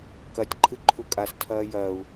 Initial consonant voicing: voiceless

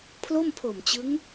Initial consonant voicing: voiceless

